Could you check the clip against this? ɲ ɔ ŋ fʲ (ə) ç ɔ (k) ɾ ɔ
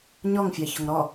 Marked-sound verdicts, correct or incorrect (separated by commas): incorrect, incorrect